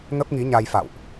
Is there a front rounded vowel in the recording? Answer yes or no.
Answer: no